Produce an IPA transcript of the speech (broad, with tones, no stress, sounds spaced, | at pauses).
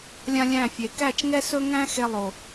lʲ ã˦ lʲ æ̃˦˨ fʲ e˨ k æ˦˨ t͡ʃ ŋ ɛ˦ s ɵ˦ ŋ æ̃˦ x e˦ lˠ o˨